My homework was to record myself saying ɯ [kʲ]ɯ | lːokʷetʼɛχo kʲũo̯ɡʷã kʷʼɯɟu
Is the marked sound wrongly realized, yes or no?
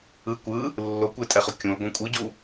yes